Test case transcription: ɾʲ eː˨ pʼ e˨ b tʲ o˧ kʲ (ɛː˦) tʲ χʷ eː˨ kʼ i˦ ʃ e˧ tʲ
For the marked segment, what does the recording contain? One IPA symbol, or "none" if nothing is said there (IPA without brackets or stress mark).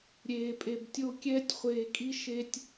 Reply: ɛː˦